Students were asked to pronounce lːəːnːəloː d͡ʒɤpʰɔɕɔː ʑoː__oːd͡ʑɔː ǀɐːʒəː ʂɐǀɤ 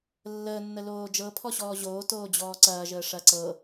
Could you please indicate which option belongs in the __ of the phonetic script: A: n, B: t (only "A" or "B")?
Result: B